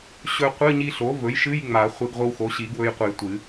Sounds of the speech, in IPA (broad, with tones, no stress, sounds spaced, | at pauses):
ɕ ɵ˧ qʷ ɨ˧˥˧ ɲ i˧ ɬ o˩˥ v ɵ˩˥ j ʃ ɨ˧˥˧ j ŋ͡m a˨˩˦ χʷ e˧ ɡ ʁʷ ɨ˧ w x o˩˥ ɕ i˨˩˦ ɡ w ɵ˧ j qʷ ɨ˨˩˦ j tʷ ɨ˨˩˦